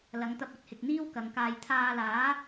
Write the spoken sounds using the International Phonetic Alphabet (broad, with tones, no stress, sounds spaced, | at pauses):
l ɐ˨˧ ŋ t̪ ɐ˧ p̚ ɐ˨˥ t̚ h ɪ˨ k̚ n̪ iː˥ w k ɐ˨˧ ŋ k aː˧ j t̪ʰ aː˧ l aː˨˥